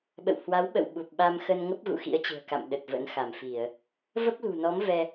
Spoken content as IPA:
ɓ ə̰˧˨ w h w a˨˦ w ɓ ə̰˧˨ w ɓ u˨˩ p̚ ɓ a˧ m x ə˧ n ŋ ə˦˥ p̚ ɣ ṵ˧˨ x ḭ˧˥ ə̯ t͡ɕ ɨ̤˨˩ ə̯ k a̰˧˨ m ɗ ə˨˩ t̚ v ə̰˧˥ n x a˧˩ m f i˧˩˨ ə̯ | v ə˦˥ p̚ l ṳ˨˩ n ɔ˨˦ m v ɛ˧

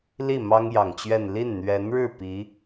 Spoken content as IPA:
l i˥˩ m ɑ˥ ŋ j ɑ˨˩ ŋ t͡ɕ ɥ ɛ˥˧ n l i˥˩ n n̪ ɥ ɛ˧˥ n ɻ ɻ̩˥˩ p i˧˥

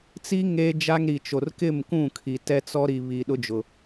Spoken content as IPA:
t͡s i˦ ŋ eː˦ d͡ʒ a˦ ŋ ɾ i˨ t͡ʃ o˨ r k ɪ˦˨ m k ũ˦˨ kʰ i˨ t ɛ˦ t͡s ɔ˦ ɾ i˨ β i˨ ɗ ʊ˦ d͡ʒ ʊ˨

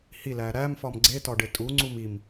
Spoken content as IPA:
h i l æ ɾ æ m f ɒ m ɡ͡ǀ e t ɒ ɖ e tʼ u ŋ͡ǀ u m i m

